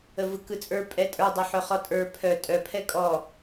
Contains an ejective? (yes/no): yes